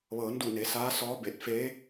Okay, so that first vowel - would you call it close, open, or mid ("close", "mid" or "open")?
mid